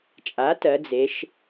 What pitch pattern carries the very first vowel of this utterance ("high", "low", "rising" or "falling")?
rising